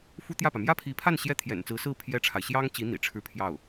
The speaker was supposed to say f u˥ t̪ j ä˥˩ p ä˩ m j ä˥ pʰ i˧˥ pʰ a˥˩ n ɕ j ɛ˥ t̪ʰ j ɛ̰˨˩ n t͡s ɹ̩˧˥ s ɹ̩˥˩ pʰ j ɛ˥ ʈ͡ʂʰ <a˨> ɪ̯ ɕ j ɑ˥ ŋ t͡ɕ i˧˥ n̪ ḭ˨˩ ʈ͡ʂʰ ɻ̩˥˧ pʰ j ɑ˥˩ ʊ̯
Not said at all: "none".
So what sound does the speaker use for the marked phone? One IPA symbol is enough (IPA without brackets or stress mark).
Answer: a˨